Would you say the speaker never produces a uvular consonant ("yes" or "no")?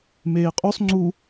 no